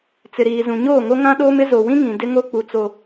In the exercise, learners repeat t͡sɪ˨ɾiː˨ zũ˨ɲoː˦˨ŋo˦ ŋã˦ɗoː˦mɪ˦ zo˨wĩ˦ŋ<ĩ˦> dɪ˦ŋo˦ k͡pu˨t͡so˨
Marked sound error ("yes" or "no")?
yes